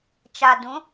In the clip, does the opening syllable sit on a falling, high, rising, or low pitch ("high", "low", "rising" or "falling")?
low